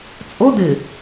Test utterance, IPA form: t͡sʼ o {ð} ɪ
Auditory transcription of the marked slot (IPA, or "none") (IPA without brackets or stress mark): d